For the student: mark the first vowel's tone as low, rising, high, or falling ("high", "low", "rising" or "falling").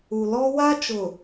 low